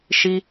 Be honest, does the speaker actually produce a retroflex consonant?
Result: no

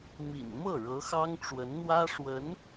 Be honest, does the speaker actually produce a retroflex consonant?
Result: yes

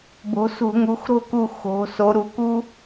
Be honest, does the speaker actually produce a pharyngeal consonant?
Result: no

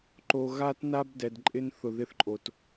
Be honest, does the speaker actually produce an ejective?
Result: yes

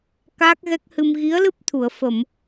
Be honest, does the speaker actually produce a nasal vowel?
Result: no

